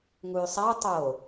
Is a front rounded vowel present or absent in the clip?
present